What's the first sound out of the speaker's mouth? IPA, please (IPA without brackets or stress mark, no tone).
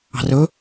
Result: ɑ̤